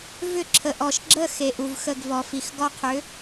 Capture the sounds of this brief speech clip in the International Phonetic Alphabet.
vʏ˥˧ǁʰə˨ʔɔ˨ʃɡ͡ǁə˥˧ xe˨˥ʔu˨vxə˥˧ɡvɔ˨ fi˨xɡɔ˥˧qʰʏ˨˥

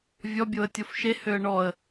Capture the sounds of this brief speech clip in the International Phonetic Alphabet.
vʲɔ bʲoə̯tʲofʃe høə̯ɳɔə̯

